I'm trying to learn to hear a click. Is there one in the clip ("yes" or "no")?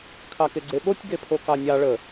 yes